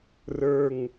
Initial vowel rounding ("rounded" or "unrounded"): unrounded